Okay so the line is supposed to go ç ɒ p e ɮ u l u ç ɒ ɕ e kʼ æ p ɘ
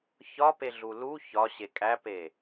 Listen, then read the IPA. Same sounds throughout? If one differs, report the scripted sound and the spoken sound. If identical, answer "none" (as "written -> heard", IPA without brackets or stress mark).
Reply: ɘ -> e